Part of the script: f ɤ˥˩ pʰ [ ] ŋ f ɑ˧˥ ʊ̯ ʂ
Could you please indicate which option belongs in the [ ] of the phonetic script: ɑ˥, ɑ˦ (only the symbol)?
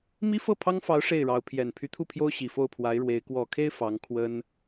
ɑ˥